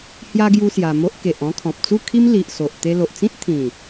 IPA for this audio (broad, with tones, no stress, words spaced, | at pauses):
hja˦ ɡju˦sja˧mo˦ʔ ke˨ʔɔ̃˦kʰɔ̃˨p̚ t͡su˥˧kʰi˦m li˨ʔso˨ʔ t̪e˧lo˨ʔt͡sĩ˦t̚ t̪ʰĩ˨˩